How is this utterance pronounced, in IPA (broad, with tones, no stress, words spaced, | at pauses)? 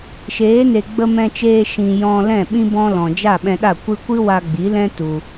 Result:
ʃeː˨˦ne˨ ɡ͡bə˧mɛ̃˧t͡ʃeː˧ ʃĩ˨ jɔ̃˧ lɛ̃˦˨ɓĩ˦ bɔ̃˦ lɔ̃˨ d͡ʒa˦˨ɓɛ̃˧ɗa˦˨ kʷɨ˦ kʷɨ˦wa˧ɡ͡bi˨˦lɛ̃˦ tu˧